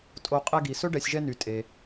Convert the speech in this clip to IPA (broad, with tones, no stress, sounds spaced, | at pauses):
tʼ o˨ qʼ ɛ˦ ɡ i˩ s ɵ˥ ɖ ɛ˨ sʲ ʒ ɛ˦ n y˩ tʼ e˩